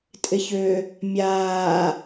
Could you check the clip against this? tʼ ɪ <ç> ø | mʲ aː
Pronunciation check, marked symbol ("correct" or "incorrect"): correct